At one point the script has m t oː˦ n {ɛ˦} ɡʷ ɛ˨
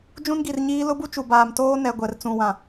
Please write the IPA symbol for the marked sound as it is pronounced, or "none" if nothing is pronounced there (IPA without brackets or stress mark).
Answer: ɛ˨